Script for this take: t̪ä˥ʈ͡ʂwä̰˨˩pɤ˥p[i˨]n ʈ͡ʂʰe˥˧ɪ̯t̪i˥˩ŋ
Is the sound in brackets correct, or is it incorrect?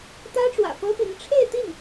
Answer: incorrect